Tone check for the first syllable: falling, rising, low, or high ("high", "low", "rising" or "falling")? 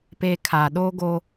high